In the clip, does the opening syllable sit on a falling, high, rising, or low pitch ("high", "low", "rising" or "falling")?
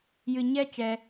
low